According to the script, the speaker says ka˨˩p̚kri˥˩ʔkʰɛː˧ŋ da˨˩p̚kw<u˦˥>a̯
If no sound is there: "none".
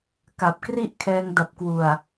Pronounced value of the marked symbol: u˨˩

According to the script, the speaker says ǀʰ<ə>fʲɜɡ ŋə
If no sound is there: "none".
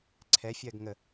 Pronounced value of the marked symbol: ɛ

